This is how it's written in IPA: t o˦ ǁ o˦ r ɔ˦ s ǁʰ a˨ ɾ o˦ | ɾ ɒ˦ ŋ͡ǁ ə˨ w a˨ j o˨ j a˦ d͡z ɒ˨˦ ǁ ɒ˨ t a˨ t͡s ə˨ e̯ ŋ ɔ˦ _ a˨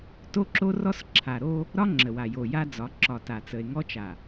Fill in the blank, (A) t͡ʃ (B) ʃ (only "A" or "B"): A